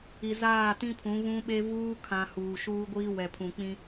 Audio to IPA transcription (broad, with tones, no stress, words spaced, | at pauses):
i˨zaː˦˨tĩ˦pʰũ˨˦ βũ˦ɓe˦ vuː˦kʰã˨ huː˨ʃuː˦ɡʷiː˦ wɛ˨pʰũ˨ k͡pĩ˦